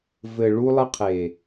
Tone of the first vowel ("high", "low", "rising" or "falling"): low